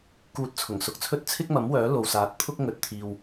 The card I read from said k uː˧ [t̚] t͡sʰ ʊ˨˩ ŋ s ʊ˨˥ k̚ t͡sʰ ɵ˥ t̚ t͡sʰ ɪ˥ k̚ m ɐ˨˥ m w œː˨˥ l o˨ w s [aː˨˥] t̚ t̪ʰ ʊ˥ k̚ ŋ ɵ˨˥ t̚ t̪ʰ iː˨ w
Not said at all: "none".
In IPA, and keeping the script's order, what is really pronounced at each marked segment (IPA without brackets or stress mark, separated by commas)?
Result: t̚, aː˨˥